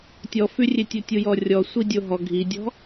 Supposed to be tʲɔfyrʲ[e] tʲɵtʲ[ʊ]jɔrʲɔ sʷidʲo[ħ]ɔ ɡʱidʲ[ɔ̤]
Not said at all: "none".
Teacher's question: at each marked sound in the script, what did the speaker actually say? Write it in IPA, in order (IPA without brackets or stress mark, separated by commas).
e, u, ɦ, ɔ̤